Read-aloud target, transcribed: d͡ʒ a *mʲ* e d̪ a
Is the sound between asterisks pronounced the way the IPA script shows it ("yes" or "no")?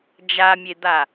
yes